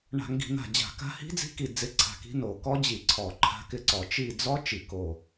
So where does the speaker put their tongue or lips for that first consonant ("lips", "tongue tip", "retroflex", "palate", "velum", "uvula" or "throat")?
retroflex